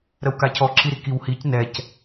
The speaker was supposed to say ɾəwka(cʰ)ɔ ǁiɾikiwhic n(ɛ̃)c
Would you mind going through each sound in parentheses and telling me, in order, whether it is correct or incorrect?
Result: correct, incorrect: ɛ

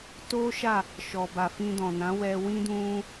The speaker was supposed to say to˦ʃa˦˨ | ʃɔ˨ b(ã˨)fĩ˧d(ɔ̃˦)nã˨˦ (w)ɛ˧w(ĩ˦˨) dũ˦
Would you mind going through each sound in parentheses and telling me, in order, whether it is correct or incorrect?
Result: incorrect: a˨, incorrect: ɔ̃˨, correct, incorrect: ĩ˦

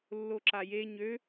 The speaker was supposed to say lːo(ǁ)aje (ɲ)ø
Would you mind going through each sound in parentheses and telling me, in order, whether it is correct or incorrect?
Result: correct, correct

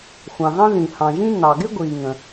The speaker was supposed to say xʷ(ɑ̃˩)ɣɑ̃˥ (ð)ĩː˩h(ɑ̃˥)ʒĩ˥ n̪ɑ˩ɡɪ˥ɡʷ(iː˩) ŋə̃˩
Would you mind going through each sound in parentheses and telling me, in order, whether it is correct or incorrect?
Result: correct, correct, incorrect: ɑ̃˩, correct

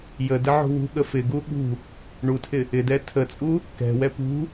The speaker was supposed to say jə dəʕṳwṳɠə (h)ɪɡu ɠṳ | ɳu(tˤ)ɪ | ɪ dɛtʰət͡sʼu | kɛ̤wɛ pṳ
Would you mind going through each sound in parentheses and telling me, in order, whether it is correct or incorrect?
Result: incorrect: f, incorrect: tʰ

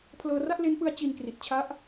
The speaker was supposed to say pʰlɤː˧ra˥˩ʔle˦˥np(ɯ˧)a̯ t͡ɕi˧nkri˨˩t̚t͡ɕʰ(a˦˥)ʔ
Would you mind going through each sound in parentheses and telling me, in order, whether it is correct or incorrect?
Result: incorrect: ɯ˦˥, correct

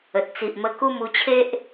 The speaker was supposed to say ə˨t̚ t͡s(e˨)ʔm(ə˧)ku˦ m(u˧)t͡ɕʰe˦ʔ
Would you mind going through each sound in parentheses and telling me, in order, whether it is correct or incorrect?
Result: incorrect: i˨, correct, correct

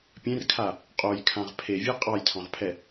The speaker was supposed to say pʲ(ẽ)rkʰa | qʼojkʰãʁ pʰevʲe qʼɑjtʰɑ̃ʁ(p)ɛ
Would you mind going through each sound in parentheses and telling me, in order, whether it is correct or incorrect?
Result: correct, incorrect: pʰ

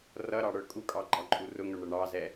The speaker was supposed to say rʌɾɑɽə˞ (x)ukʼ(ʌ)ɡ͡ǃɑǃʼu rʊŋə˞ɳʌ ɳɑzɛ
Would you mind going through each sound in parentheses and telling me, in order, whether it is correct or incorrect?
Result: incorrect: kʼ, incorrect: ɑ

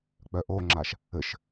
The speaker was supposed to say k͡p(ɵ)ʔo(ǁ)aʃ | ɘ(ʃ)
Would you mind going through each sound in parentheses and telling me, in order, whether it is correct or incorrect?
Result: incorrect: œ, incorrect: ŋ͡ǁ, correct

